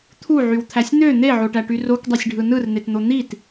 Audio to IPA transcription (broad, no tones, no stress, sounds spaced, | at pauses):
t̪ʰ u ʕ y w t̪ʰ æ sʲ n̪ ø n̪ e ʕ o ʈ æ ʈ y r o k dˤ e sʲ ɖʱ ɯ n ɯ r n̪ e t n̪ o n̪ i t